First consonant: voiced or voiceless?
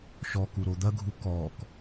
voiceless